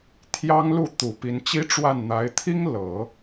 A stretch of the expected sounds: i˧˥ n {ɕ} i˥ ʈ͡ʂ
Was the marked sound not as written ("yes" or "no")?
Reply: yes